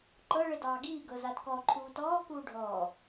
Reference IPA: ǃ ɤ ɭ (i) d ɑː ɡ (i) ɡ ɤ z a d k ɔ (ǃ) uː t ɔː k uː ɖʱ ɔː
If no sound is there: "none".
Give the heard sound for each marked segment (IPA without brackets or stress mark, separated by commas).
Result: e, iː, ǃʰ